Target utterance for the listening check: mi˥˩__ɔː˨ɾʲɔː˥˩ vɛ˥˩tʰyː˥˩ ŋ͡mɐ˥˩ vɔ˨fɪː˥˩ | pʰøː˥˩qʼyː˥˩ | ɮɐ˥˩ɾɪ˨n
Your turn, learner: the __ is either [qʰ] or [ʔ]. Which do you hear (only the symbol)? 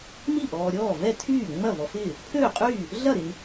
ʔ